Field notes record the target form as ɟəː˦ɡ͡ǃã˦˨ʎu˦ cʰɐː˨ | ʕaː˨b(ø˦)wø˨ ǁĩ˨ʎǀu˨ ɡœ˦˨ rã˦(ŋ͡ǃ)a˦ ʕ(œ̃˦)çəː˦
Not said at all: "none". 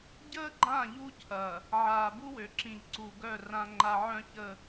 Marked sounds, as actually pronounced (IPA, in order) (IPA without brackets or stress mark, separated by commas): u˦, ŋ͡ǃ, œ̃˦